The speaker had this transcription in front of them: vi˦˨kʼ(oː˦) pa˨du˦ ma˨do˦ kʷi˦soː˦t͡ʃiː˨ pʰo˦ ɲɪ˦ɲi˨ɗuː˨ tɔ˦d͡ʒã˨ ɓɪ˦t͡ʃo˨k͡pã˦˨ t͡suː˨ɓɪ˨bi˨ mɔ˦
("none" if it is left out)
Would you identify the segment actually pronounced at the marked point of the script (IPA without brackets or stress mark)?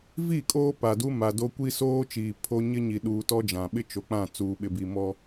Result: oː˦